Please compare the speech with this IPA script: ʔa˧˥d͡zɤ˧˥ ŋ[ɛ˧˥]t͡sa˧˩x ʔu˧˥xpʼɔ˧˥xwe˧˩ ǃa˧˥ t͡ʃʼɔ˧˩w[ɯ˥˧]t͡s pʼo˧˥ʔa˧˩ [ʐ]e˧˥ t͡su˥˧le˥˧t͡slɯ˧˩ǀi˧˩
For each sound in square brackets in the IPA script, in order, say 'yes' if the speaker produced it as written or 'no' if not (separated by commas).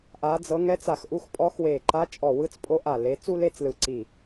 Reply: yes, yes, no